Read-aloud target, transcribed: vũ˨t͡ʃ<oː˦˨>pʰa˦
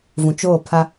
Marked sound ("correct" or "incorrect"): correct